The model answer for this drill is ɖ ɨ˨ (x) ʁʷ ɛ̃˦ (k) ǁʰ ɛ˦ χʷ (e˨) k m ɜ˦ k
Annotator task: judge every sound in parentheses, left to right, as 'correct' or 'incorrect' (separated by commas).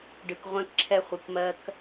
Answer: incorrect, correct, incorrect